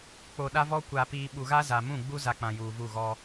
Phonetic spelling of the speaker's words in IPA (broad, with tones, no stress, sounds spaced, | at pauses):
k͡p o˨ ɗ a˦ v ɔ˦ kʷ a˨ p iː˨ ɓ u˨ ɣ a˦ z a˨ m ũ˦˨ ɡ͡b u˦ z a˨ k͡p ã˨ j uː˨ v u˦˨ ɣ ɔ˦